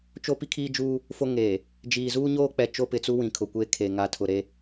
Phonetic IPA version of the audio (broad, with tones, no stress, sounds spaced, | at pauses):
t͡ʃ o˦ p i˦ kʰ iː˦ d͡ʒ uː˦ | f o˦ ŋ eː˨ | d͡ʒ iː˨ z uː˦ ɲ oː˦ k͡p ɛ˨ t͡ʃ o˦ p ɪ˨ t͡s u˦ w ĩ˨ kʰ ʊ˨ kʷ eː˦ kʰ e˨ ŋ a˨ tʰ ʊ˨ ɾ e˦